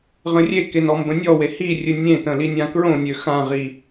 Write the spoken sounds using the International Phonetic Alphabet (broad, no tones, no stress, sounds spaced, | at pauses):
ʁ ə̃ rʲ e k e n ɔ m b ə̃ nʲ ɔ w e h i rʲ ɨ nʲ ẽ t ə̃ l i nʲ ã k ɹ õ nʲ ø x ã ʁ i